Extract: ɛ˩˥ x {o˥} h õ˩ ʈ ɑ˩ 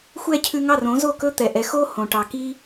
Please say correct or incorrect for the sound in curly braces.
correct